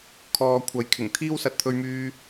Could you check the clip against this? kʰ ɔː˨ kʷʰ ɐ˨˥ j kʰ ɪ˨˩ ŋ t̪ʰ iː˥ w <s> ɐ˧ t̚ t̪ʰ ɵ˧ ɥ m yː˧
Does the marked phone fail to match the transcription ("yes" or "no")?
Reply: no